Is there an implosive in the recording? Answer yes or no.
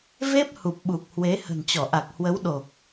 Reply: yes